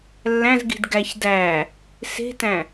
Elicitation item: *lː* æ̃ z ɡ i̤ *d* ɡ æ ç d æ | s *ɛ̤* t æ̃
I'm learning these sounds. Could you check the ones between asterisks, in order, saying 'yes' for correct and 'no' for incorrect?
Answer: yes, yes, no

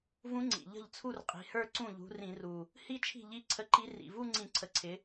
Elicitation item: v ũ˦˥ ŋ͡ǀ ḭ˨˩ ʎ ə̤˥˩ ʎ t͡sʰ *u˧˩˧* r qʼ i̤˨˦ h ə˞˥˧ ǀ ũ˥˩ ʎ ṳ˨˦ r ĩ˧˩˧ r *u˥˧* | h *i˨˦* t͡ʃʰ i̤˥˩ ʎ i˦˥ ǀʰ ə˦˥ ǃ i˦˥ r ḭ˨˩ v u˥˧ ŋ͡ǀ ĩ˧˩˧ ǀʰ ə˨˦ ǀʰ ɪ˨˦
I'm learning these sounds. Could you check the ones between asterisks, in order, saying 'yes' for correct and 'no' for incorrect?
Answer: no, no, no

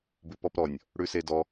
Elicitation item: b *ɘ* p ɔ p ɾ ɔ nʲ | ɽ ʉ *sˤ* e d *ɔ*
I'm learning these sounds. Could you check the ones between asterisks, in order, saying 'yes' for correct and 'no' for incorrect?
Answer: no, no, yes

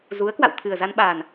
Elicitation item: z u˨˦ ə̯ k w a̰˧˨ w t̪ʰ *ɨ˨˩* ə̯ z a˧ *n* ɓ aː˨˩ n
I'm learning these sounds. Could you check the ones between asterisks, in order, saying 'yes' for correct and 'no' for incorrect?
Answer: yes, yes

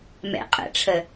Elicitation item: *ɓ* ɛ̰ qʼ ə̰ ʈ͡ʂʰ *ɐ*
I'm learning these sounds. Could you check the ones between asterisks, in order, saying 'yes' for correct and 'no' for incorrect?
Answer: no, no

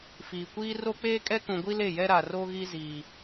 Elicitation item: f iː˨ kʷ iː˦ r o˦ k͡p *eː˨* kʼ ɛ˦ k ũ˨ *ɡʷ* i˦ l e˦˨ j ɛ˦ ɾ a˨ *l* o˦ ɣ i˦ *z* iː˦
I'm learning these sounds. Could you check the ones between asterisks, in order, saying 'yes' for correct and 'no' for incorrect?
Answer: no, yes, no, yes

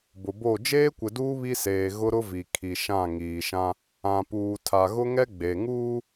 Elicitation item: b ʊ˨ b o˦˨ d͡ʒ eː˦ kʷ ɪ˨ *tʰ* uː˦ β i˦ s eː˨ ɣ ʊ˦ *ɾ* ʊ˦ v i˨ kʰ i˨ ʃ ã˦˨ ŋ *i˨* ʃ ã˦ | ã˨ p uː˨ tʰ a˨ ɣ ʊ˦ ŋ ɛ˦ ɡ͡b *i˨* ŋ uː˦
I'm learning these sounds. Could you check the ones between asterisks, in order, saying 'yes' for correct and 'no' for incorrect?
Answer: no, yes, no, no

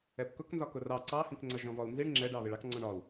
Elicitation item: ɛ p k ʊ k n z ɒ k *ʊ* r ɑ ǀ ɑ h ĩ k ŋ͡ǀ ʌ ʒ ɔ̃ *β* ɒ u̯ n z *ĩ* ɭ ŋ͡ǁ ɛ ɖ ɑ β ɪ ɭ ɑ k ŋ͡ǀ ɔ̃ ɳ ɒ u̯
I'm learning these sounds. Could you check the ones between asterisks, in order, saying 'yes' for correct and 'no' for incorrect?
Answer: yes, no, no

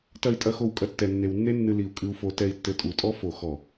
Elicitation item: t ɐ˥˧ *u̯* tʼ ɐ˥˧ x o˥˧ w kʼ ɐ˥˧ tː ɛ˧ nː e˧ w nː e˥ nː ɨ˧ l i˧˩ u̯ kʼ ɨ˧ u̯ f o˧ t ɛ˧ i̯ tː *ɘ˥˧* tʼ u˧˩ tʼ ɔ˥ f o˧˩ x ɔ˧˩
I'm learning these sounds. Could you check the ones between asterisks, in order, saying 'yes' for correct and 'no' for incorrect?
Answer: no, no

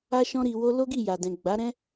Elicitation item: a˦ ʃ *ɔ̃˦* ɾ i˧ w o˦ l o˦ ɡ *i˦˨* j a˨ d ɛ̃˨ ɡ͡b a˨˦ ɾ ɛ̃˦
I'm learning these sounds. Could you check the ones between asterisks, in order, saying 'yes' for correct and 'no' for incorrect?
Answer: yes, yes

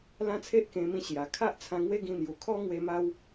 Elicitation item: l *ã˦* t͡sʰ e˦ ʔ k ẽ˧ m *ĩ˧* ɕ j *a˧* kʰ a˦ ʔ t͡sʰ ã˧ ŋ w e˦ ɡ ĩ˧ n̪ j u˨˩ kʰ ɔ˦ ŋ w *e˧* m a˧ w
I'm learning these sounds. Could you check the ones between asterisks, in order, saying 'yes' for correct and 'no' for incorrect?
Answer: yes, yes, no, yes

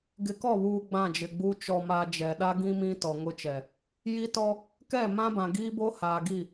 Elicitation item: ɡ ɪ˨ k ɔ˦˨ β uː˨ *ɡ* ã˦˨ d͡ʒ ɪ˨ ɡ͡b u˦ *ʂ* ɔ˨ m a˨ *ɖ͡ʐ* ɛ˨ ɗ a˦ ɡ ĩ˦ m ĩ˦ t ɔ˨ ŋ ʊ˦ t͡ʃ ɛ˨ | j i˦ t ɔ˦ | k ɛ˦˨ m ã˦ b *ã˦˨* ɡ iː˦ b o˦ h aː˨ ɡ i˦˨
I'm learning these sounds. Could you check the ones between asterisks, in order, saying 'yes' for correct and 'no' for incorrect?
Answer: no, no, no, no

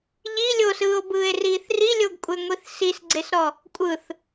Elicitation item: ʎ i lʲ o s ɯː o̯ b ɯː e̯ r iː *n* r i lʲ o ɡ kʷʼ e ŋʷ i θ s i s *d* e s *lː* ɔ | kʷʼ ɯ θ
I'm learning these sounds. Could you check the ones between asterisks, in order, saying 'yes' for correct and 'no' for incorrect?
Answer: no, no, no

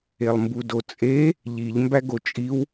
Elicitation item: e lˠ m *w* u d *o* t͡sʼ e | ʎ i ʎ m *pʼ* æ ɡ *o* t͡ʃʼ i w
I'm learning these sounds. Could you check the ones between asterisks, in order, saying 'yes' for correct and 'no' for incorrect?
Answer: no, yes, no, yes

